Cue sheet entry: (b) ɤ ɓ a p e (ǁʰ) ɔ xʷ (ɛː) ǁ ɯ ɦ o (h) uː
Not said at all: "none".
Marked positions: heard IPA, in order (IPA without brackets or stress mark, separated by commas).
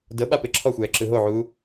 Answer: d, ǁʰ, ɛː, ʕ